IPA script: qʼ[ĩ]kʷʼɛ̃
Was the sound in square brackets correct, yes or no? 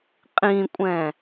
yes